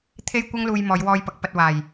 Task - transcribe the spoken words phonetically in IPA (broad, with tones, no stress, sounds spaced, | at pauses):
t̪ʰ e˥ j kʷ ɐ˥ ŋ l uː˧ j m ɔː˨˧ j w ɔː˧ j p ɐ˨˥ k̚ p ɐ˧ t̚ w aː˨˩ j